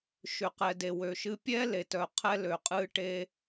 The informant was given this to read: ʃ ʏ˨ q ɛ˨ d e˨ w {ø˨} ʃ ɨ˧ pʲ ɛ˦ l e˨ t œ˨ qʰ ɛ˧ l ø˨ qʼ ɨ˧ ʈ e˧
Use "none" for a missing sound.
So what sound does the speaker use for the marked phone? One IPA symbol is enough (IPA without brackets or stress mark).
ø˨